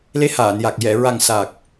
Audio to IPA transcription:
le˧˥haː˨˩˨nja˨˩k̚ jɛ˨˩˨ ɹa˨˩ŋ sa˨˩k̚

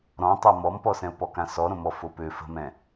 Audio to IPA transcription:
ɾɔ̃tˤa mɔmpɔsɛ̃ʊ̯pɔ kãsɔɾõmɔ fopø fə̤mɛ̃

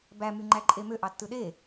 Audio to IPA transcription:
bæmy ŋ͡ǃæǃʼemø ʔɑtːɯɗe

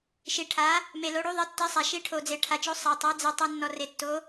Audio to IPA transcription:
ʃi˩ʈʰa˩˧ | me˩lo˩˧ɽu˩˧ ðˤi˩˧tːi˩˧sˤa˩ ʃi˩˧ ʈʰo˩d͡ze˩ʈʰa˩t͡ʃo˩˧ sˤa˩tˤa˩˧ d͡ze˩tˤu˩ nːɔ˩re˩tːo˩˧

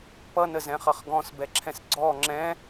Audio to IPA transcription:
pʌnəzɛ̃χʌχ ɡɔ̃sbɛǁʰɛ̃s ɡ͡ǀɔ ŋ͡ǁɛ̃

